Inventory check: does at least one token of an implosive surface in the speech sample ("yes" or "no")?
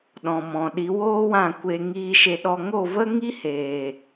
yes